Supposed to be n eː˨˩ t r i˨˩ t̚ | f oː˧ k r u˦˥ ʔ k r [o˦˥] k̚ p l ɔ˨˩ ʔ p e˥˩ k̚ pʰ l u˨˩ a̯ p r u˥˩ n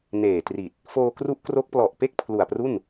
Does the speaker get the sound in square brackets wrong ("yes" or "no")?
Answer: no